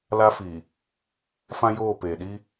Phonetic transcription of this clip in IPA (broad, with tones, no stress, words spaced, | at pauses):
la˦fi˨ | fã˦joː˦˨peː˨ ɗi˦